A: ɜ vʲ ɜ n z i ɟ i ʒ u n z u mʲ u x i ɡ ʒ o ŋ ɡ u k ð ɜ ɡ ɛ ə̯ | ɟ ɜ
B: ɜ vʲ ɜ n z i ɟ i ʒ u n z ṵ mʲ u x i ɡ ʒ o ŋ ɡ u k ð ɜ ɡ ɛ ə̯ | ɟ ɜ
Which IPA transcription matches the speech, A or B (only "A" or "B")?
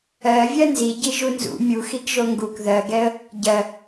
B